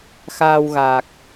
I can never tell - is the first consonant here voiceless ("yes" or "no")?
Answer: yes